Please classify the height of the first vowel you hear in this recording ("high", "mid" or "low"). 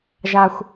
low